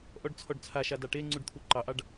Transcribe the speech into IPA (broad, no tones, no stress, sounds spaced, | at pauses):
ʔ ɔ ɖ t͡sʰ ɔ ɖ t͡sʰ a ʃ a d ɑ ʈ e ŋ͡ǀ u ɖ t̪ʰ u ǃ ɑ ʔ ɑ ɖ